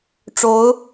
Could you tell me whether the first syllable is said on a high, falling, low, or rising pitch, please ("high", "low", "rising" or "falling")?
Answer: rising